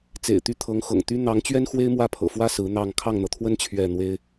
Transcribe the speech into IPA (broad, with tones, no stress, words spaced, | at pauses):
t͡sḛ˨˩ɪ̯t̪y˥˩t̪ʰɤ˧˥ŋxɤ̰˨˩ŋ t̪y˥ n̪ɑ˧˥ŋt͡ɕɥɛ˥n xwe˥ɪ̯mwä˥˩pʰɤ̰˨˩fwä˥ sɹ̩˧˥n̪ɑ˥˧ŋ kʰɑ˥˩ŋn̪ɤ˩t̪ʰwə˥n t͡ɕʰɥɛ˥˩n̪we˥ɪ̯